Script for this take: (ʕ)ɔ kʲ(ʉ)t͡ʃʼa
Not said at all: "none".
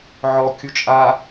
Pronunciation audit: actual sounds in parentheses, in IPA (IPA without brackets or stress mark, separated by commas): ʕ, u